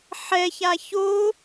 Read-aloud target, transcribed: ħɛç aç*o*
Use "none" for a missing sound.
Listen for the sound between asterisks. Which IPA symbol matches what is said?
o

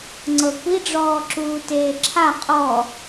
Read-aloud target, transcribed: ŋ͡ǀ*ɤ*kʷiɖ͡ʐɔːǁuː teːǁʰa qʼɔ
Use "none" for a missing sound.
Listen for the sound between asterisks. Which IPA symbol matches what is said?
ɤ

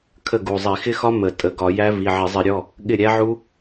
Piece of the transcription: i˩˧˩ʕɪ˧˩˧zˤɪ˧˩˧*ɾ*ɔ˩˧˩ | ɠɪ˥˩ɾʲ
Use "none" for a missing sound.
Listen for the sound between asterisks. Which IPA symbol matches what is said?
ɾʲ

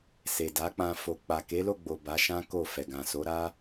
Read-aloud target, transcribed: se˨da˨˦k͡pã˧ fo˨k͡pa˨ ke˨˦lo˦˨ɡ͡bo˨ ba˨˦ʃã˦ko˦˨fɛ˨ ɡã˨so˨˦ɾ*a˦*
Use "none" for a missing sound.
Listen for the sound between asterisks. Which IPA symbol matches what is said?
a˦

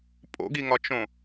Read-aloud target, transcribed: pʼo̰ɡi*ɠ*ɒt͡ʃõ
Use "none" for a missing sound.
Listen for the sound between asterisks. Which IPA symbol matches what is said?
ŋ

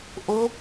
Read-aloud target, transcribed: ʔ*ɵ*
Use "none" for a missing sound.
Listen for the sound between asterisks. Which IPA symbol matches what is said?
o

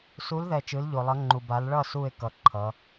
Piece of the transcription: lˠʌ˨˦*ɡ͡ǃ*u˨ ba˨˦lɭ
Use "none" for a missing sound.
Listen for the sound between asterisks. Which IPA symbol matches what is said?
ŋ͡ǃ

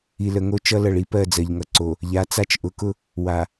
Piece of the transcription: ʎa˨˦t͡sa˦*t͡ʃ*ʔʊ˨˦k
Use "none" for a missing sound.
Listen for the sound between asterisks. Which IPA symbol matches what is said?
t͡ʃ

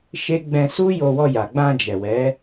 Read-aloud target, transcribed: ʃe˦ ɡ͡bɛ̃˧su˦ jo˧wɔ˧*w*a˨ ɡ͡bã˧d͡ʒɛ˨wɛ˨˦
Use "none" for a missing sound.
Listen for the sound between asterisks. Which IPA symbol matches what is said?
j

